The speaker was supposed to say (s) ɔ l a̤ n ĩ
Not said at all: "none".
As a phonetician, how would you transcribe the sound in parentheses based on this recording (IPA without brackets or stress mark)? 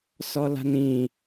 s